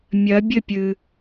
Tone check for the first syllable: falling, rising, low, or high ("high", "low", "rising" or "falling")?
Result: rising